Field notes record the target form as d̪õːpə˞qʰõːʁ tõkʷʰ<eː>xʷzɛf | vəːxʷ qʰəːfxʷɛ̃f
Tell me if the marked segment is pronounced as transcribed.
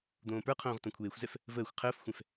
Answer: yes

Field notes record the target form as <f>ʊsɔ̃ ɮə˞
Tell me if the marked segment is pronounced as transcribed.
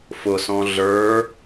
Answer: yes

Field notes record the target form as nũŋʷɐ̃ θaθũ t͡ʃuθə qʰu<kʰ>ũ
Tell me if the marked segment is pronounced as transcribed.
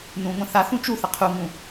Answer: no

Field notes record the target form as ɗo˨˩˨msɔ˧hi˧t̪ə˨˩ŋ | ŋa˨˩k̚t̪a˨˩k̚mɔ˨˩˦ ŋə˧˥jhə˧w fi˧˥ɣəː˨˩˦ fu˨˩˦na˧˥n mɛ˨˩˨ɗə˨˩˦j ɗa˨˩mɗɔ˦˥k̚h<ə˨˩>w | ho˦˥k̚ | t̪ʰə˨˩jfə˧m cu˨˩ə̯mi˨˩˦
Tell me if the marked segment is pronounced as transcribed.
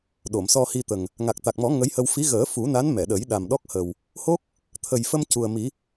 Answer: yes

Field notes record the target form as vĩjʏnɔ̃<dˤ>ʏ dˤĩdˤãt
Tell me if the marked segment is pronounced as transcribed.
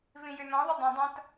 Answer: no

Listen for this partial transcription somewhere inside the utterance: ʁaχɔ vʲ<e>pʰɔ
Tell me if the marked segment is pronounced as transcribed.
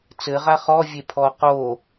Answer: yes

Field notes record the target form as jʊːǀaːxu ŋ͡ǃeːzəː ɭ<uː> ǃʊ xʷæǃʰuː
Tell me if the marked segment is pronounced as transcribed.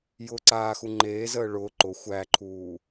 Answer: no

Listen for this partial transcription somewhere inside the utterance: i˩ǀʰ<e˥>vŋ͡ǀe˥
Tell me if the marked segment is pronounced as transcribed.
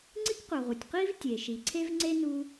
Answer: yes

